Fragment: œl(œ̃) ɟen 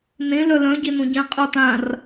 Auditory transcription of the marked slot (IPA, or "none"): œ̃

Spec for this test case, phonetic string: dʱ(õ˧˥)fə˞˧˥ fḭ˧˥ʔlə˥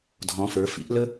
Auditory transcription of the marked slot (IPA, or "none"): ɔ̃˧˥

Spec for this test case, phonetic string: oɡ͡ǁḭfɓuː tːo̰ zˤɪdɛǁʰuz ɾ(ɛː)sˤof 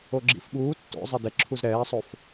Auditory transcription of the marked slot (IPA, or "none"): ɛː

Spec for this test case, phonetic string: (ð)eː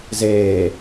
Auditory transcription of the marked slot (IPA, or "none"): z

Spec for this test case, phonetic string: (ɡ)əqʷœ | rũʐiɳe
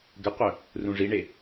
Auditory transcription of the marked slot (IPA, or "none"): ɡ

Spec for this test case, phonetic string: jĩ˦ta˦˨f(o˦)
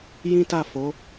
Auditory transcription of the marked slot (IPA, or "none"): o˨˦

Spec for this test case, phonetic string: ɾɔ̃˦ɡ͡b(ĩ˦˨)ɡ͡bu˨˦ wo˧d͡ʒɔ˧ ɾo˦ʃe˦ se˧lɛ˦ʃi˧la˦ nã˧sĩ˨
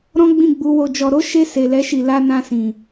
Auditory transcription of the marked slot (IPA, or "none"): ĩ˦˨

